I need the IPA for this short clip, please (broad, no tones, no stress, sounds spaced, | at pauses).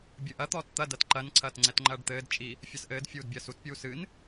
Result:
bʲ ɨ ʔ ɐ t̪ ɔː t t̪ ɐ d ɐ t ǃ ɐ n ǀʰ ɐː t ŋ͡ǀ ɛ t ŋ͡ǃ ɐː ɖ t̪ ɘː d t͡ʃʼ i | fʲ ɐ s ʔ ɘː d fʲ uː d bʲ ɐː s u t pʲ uː s ɨ n